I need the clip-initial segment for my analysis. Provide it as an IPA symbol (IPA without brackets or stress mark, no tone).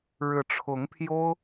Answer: ɻ